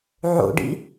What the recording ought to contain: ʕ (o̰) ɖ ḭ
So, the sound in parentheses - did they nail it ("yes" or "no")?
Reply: yes